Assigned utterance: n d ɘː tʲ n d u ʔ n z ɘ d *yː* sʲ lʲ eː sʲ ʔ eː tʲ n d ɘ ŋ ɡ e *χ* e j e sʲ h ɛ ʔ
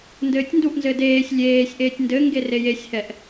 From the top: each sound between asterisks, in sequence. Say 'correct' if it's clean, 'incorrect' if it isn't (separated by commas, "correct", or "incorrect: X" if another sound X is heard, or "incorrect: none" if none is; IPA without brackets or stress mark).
incorrect: eː, incorrect: r